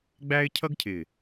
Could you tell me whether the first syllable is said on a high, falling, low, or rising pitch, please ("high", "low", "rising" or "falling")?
high